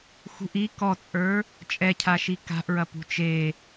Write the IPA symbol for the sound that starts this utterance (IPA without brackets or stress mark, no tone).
x